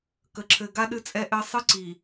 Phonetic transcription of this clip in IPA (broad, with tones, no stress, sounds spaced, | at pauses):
k ə˨ ǁʰ ɘ˨ ɡ a˦ ɗ ɨ˦ t͡sʼ ɛ˦ ʔ ɘ˦ sˤ ɨ˦ ǀ i˨